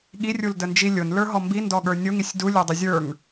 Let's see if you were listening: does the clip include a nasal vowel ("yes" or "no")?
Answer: no